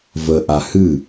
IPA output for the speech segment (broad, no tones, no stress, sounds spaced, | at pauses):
v ə ʔ a h ɨ